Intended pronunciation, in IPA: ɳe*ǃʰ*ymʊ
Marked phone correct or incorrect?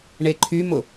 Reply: correct